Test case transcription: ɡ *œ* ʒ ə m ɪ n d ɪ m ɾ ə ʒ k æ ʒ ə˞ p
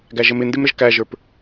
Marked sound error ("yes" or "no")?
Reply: yes